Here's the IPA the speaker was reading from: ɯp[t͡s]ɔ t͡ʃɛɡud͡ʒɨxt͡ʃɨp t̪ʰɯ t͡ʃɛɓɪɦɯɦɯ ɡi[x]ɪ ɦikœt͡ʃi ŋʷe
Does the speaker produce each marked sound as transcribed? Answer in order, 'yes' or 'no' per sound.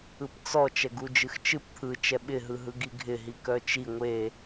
yes, no

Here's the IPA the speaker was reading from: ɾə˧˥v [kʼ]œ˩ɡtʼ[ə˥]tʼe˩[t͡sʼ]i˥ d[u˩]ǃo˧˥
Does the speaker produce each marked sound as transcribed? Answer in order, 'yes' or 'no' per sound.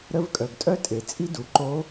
yes, no, yes, yes

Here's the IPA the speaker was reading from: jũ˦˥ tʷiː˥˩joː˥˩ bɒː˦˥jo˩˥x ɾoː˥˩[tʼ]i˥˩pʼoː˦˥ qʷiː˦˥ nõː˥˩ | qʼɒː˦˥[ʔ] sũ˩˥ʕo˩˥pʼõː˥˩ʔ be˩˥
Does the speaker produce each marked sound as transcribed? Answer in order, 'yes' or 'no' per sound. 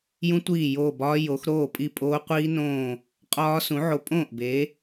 no, no

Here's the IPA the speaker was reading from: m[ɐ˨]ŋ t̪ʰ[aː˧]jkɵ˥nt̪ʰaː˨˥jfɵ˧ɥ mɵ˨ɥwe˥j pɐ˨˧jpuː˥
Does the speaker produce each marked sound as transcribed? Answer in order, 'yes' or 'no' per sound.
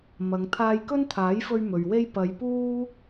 no, yes

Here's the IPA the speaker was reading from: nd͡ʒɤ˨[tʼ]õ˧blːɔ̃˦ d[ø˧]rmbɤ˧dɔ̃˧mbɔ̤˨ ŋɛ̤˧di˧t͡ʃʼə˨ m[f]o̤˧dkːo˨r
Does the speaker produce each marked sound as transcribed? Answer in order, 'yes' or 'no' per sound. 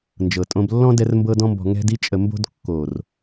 yes, no, no

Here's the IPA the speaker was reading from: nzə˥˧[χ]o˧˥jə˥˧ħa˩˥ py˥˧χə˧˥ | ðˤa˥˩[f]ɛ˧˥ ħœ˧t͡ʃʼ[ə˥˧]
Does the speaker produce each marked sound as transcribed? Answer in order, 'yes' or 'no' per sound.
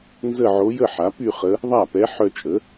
no, no, no

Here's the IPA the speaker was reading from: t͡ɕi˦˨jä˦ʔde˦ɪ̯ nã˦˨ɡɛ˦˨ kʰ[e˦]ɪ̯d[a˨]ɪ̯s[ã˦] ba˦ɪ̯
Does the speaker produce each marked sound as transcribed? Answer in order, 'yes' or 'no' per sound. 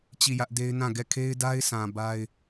yes, no, no

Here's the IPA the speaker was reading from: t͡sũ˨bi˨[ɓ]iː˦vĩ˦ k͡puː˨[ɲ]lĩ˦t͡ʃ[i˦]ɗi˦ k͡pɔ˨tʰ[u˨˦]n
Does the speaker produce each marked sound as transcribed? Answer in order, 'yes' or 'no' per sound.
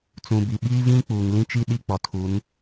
yes, no, yes, yes

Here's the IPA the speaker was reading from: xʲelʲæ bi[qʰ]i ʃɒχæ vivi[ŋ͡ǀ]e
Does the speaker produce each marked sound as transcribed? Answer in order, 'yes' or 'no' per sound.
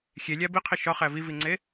yes, yes

